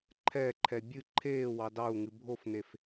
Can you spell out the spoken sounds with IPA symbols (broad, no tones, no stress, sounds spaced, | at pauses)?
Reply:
ǃʰ ɛ ǃʰ ɛ bʲ ɨ ǃʰ eː w ɑ d ɑ u̯ ŋ ɨ bʱ o f n e f